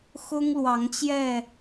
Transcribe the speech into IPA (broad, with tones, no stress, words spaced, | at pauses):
xʊ˦ŋlwɑ˨˦ŋt͡ɕjɛ˥˨